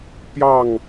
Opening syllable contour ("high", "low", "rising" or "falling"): falling